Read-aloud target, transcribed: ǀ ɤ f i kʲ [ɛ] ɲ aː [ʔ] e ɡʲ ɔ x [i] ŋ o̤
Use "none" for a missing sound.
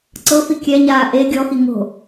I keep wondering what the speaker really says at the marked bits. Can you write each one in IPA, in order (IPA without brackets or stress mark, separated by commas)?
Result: ɛ, ʔ, i